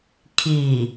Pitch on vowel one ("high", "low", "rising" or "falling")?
low